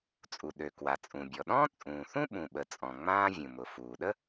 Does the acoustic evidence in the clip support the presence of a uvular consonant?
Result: no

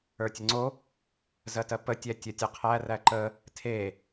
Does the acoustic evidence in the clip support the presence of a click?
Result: yes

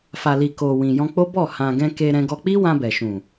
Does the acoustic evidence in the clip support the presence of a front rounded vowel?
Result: no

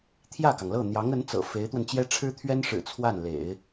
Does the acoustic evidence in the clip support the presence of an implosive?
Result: no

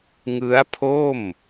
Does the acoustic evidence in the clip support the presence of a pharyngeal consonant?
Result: no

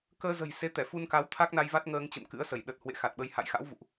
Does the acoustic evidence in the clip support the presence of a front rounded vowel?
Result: no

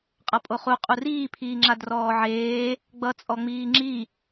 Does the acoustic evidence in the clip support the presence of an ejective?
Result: yes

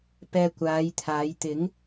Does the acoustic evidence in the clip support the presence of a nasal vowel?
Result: no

